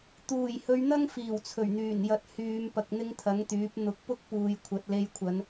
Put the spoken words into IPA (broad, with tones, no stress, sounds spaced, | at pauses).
t̪ uː˨˩ j h ɵ˨˧ ɥ n̪ ɐ˥ ŋ f iː˨˩ w t͡sʰ ɵ˨˩ ɥ n̪ yː˨˩ n j ɐ˨ t̚ h yː˨˧ m p ɐ˧ k̚ n̪ ɪ˥ ŋ t̪ʰ ɐ˨˥ ŋ t̪ yː˨˥ p̚ n̪ ʊ˨˥ k̚ p ʊ˥ k̚ p uː˨ j kʷʰ ɐ˨ t̚ l e˧ j kʷʰ ɐ˨˧ n